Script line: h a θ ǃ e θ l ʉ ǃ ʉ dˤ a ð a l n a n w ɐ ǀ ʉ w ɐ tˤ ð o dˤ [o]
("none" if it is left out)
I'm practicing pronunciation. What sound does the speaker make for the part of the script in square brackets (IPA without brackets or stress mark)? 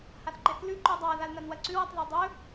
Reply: ɵ